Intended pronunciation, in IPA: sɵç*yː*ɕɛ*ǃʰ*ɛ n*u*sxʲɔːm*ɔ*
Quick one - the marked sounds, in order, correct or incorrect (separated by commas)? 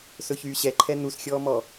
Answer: correct, correct, correct, correct